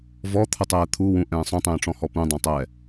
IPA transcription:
v ɔ t̪ʰ ə tˤ ɛː t̪ʰ u w ũ ʔ ɛ̃ː sˤ õ tˤ ɛ̃ː ʈ͡ʂ ɔ̃ h ɔ p ũ dˤ õ tˤ ɛː

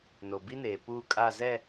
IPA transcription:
n o˨ b i˦ n eː˨ p uː˦ kʼ a˦˨ z ɛ˦˨

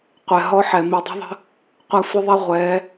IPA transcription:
qʷ ɛ˨ ɦ ɔ˦ ħ ɛ˨ m i˨ dˤ ə̤˦ ðˤ ə̤˦ | qʷ a˦ sʷ ɪ˦ ðˤ ɛ˦ ʁʷ ɛː˨˦

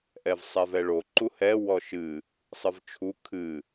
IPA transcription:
ʔ ɛ v sˤ ɛ v ɛ ɭ o ǃ u h ɛ w ɔ ʃ ɨ | sˤ ɨ v t͡ʃʰ u kʰ ɨ

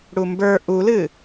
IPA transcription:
ɽ u m b ə˞ ʔ u l ɨ

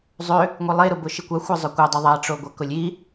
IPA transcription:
zˤ ø | ŋʷ i lˠ e ɾ ʊ b ʊ ʃ i kʷ a xʷ a zˤ ʊ kʷ a dˤ o ðˤ a ʈ͡ʂ o ɡʷ a k ʊ lʲ i

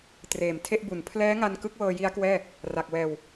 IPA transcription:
t r eː˨˩ m tʰ e˥˩ ʔ b u˨˩ n pʰ l ɛː˦˥ ŋ a˧ n k ɯ˦˥ k̚ w ɤː˧ j i˦˥ a̯ k w ɛː˥˩ | r a˨˩ k̚ w ɛː˧ w

